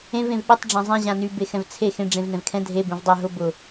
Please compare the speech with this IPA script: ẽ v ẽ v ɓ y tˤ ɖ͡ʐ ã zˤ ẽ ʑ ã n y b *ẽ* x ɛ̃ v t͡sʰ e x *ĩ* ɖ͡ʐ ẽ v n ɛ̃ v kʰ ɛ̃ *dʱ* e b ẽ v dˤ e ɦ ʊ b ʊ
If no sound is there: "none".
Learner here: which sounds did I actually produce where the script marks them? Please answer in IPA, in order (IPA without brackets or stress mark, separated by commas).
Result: e, ẽ, dʱ